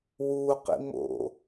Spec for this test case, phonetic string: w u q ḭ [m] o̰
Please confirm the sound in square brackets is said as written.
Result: yes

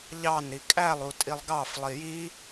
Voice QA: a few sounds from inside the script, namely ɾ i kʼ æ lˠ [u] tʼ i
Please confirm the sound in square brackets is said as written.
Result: yes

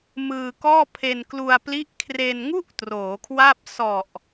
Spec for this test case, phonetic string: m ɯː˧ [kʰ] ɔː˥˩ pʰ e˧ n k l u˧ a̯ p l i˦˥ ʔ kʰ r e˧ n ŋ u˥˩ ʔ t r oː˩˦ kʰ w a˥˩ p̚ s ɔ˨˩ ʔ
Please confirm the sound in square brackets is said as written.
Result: no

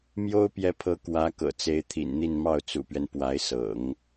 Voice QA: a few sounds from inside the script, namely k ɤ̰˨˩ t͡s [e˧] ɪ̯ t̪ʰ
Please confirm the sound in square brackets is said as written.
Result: no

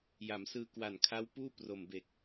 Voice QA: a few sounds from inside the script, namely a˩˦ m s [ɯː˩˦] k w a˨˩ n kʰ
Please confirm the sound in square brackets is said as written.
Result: no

